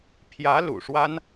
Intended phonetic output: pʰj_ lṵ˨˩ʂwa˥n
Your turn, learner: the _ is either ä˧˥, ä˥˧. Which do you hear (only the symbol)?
ä˧˥